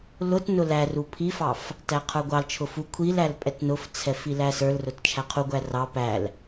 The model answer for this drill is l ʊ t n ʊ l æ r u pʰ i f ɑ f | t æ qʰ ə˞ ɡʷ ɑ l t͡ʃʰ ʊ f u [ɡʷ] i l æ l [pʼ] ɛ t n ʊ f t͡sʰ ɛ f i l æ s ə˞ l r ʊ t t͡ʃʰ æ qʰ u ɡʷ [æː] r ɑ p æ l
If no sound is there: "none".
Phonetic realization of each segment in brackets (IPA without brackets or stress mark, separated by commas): kʷʰ, pʼ, æ